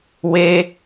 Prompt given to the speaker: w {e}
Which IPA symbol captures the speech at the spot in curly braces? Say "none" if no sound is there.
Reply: e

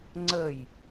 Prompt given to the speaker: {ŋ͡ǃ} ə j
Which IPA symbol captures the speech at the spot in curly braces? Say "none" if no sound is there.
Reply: ŋ͡ǀ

